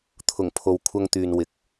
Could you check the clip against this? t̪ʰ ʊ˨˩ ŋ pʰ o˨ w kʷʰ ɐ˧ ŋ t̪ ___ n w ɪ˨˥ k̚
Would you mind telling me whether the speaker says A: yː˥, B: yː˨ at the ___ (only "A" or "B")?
B